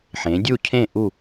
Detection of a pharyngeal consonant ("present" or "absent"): present